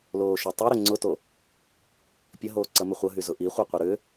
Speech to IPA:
l oː ʃ œ tˤ ʊ ɾ ʏ ŋ͡ǀ ʊ t o | pʲ ɐ ɦ oː ǀ ɐ m ʏ χʷ ɐ ɦ y z ʊ ʔ i χʷ œ qʷ ɐ ɾ ʏ

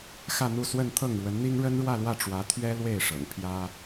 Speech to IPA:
x ä˥˧ n̪ u˥˧ s w ə˥˧ n t̪ʰ ɤ˥˩ ŋ ɻ w ə˧˥ n n̪ i˥ ŋ ɻ ə˥ n ɻ w ä˥˧ l w ä˥˩ ʈ͡ʂ w ä˧˥ t̪ʰ ɥ ɛ˥ l w e˥˩ ɪ̯ ʂ ɤ̰˨˩ ŋ pʰ j ä˥

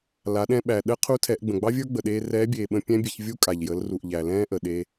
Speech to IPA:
l a˩˧ ɗ ɛ̃˧ ɓ æ˩ ɗ ə˧˥ qʰ u˧˥ tʰ ɛ˩˧ ʔ ɡ͡b ə̃˩ ɡ͡b ɑ˥ vʲ ə˞˥ ɡ͡b ə˩ ɗ eː˧ r ɛː˧˥ bʲ eː˩ ɓ ə̃˧ pʲ ɛ̃˥ bʲ e˧ ç vʲ u˥ kʼ a˩ ʎ j ə˩˧ l r u˩ ʔ ʎ æ˩ l ɛ̃ː˥ ʔ ə˩ ɗ e˧

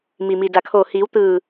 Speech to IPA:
m i˩ m i˩ d a˩ kʰ oː˧˩ h iː˩˧ w t̪ ɯː˧˩

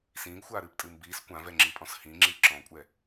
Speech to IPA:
s ĩː ɡ xʷ aː ɾ ɨː p tʼ ɨː m b iː s kʷ ã v ɛ ŋ͡ǁ i pʼ ɔ̃ s h ĩ ŋ͡ǁ i ǁ ɔ̃ kʷʼ ɛ

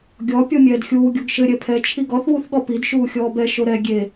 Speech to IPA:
ɡʲ ɔ pʲ ɔ mʲ ɛː d xʲ uː ɡʲ o ɡ ʃ ɘ ɾʲ ɛ pʰ ɛ t͡ʃʰ i ɡ ɔ θ w u θ ɠ ɔ p i d ʃ uː xʲ ɔː b ɛ ʃ o ɾ ɛ ɡʲ e

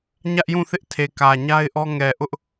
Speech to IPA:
ɲ ä˦ ʔ j ũ˦˨ θ ɪ˦ ʔ tʰ e˨ k ä˨ ɲ a˦ ɪ̯ ʔ ɔ˦ ŋ ɛ˨ ʔ ʊ˦ ʔ

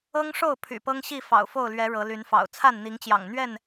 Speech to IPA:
ɤ˦ ŋ ʂ o˥˨ ʊ̯ pʰ y̰˨˩ p ɤ˦ ŋ ɕ i˥˨ f ɑ̰˨˩ ʊ̯ f o˥˨ ʊ̯ l ɥ ɛ˨˦ ɻ ɤ˨˦ l y˨˦ n f ɑ̰˨˩ ʊ̯ t͡sʰ a˥˨ n n̪ i˨˦ ŋ t͡ɕ j ɑ̰˨˩ ŋ n̪ ɥ ɛ˥˨ n

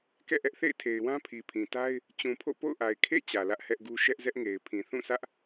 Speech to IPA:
k ɛ̰˦˨ ʔ ɛ˦ ʔ θ ḛ˦˨ ɪ̯ tʰ e˨ ɪ̯ w ã˦ pʰ i˨ pʰ ĩ˨ t a˦ ɪ̯ | t͡ɕ ũ˨ pʰ o̰˦˨ p o̰˦˨ ʊ̯ ʔ a˨ ɪ̯ kʰ ḛ˦˨ t͡ɕ ä˨ l ä˦ ʔ h ɛ˦ ʔ ɡ u˦ ʃ ɛ˦ ʔ z ɛ˦ ʔ ŋ e˨ ɪ̯ pʰ ĩ˨ θ ũ˦˨ sʰ ä˦ ʔ

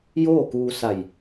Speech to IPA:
j oː˥˨ k uː˧ s a˧˩ j

